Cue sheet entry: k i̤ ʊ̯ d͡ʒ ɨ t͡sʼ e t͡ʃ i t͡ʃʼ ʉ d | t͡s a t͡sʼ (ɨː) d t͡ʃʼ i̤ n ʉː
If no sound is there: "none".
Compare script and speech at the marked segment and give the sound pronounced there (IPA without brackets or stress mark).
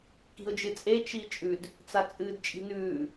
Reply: ɨː